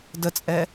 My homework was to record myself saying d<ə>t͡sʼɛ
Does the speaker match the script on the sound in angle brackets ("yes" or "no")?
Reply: yes